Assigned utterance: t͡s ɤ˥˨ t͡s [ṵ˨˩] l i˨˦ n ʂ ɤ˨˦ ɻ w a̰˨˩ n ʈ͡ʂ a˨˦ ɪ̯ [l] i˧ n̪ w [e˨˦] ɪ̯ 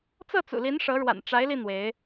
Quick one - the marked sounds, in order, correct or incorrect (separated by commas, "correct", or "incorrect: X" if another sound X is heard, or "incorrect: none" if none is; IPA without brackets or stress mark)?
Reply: correct, correct, correct